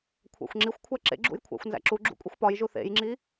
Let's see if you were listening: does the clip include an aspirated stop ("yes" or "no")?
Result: yes